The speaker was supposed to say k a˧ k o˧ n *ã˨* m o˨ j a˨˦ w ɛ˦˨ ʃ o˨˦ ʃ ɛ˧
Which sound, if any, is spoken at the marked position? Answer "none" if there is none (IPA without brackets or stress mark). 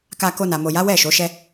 a˨